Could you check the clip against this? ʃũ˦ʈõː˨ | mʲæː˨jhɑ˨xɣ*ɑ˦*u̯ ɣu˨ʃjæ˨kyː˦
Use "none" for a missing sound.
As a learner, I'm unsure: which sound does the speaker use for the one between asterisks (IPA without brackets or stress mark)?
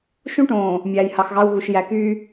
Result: ɑ˦